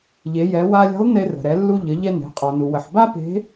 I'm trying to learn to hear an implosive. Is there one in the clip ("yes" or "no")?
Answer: no